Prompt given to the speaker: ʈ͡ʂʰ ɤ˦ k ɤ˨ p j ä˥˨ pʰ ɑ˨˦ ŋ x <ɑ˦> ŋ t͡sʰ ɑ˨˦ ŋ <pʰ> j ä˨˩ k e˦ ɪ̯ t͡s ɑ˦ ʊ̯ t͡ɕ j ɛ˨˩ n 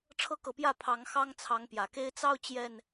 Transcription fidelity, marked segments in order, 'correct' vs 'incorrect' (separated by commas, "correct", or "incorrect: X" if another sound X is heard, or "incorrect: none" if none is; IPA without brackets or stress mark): correct, incorrect: p